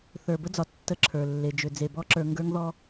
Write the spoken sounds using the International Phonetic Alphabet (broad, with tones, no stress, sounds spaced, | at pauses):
θ ə˞˨ b ə˦ d͡z ɒ˨ tː ə˦ ǁʰ ə˞˨ lː e˨ d͡ʒ ʏ˨ d͡z e˨ b ɔ˦ ǁ ə˞˨ ŋ ɡ ə˞˦ ŋ ð ɔ˦